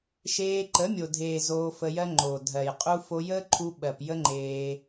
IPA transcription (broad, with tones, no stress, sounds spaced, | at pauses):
ʃ eː˧ ǃ ə˨˦ mʲ o˨ dʱ eː˨ z oː˧ f ə˧ j ɜ˦ ŋ͡ǃ oː˨ dʱ ɜ˨ j qʼ u˦ f o˧ j əː˦ ǃʰ u˧ ɓ ɜ˨ p j ə˦ ŋ͡ǃ eː˧